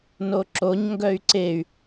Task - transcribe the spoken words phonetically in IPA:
n o ǁ o ɲ ŋ ɡ œ y̯ ǀ e y̯

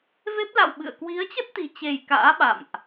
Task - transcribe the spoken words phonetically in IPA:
v e˦˥ p̚ l a̰˧˨ w ɓ ɨ̰˧˨ ə̯ k w i˨˦ ə̯ t͡ɕ ə˦˥ t̚ t̪ i˨˩ t͡ɕ e˨˩ j k a̰ː˧˥ ɓ a̰˧˨ m ʔ

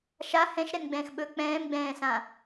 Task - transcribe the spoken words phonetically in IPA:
ʃ a h ɛ̃ ʃ ɾ ɛ n ɡ͡b ɛ̃ː x ɓ ɵ k͡p ɛ̃ː m ɡ͡b ɛ̃ː s ã

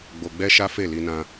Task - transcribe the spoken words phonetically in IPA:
ɡ͡b o˧ ɡ͡b ɛ˦ ʃ a˦ f e˦˨ l i˧ n ã˧

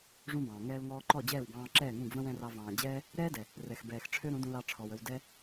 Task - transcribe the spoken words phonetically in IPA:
ʐ ũ˦ b ɑ̃ː˨ ŋ ɛː˦ l ŋ ɔː˦ ǃ ɔ˦˨ d͡ʑ ɛː˦˨ w b ɑ̃ː˧ ǁ ɛː˦˨ ŋ ũ˦˨ ɡ v ə̃˦ w ɛ̃˧ r ɑ˧ v ɑ̃ː˨ d͡ʑ ɛː˦ | ɾ ɛː˦ d ɛ˨ | r ɛ˨ x b ɛː˨ x ʈ͡ʂʰ ø˦ ɾ ũ˨˦ d ũ˧ l ɑ˧ ʈ͡ʂʰ ɔ˨ w ə˧ w d ɛ˦

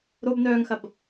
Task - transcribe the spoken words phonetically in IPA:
ɾ o b n œː ŋ x ɐ b

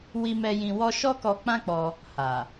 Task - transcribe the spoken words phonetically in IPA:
w i˧ m ɛ˧ j ĩ˧ w ɔ˦ ʃ ɔ˦ k ɔ˧ k͡p ã˦ k͡p ɔ˧ | h a˨

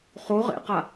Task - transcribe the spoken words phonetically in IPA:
χ o ʁ ḛ q a

